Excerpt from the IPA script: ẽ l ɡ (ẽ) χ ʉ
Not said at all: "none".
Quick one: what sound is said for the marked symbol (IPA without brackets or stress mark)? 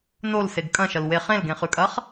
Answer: ẽ